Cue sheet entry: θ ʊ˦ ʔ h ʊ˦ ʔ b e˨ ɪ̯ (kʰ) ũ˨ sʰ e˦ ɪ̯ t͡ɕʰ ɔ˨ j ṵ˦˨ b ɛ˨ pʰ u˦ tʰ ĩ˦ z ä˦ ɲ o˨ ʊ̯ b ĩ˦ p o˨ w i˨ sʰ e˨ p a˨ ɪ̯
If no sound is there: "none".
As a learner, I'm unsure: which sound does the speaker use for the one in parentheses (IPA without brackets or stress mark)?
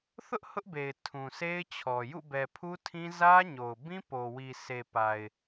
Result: tʰ